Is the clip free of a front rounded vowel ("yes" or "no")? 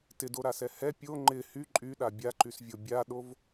no